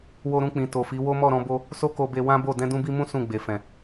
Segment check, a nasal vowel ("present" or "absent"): present